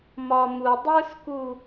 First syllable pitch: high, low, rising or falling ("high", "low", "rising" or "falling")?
high